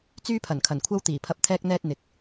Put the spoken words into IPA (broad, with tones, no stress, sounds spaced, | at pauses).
t͡s yː˥ pʰ ɐ˨˩ n kʰ ɐ˨˩ n kʷʰ ɐ˥ w t̪ iː˨˩ pʰ ɐ˧ p̚ t̪ʰ ɛː˥ k̚ n̪ ɛː˥ t̚ n̪ ɪ˨ k̚